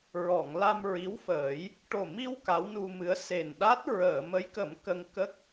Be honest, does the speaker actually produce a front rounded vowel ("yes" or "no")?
no